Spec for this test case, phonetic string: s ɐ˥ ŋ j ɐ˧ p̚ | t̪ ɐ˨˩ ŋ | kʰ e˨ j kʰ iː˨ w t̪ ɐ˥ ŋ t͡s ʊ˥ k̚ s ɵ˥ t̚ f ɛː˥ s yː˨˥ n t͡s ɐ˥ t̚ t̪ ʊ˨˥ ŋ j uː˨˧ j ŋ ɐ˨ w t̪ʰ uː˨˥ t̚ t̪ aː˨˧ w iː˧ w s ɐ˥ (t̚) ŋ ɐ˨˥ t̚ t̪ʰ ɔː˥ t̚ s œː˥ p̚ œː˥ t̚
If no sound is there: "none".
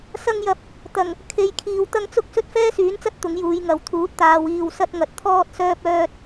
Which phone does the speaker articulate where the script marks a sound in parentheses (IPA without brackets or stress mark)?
t̚